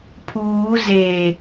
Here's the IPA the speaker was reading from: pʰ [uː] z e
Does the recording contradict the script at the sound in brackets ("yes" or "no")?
no